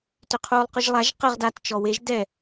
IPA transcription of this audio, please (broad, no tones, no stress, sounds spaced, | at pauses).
t ʏ qʰ uː lˠ q ʊ ʒ lˠ a ʒ q ə ʁ d a t t͡ʃ ɔ w e ʒ d ɛ